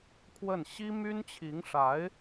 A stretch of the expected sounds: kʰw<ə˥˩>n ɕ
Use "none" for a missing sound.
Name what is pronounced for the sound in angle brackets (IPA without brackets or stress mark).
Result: ə˥˩